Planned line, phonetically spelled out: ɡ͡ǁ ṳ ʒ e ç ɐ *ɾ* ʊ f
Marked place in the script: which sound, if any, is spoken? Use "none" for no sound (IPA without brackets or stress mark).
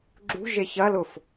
l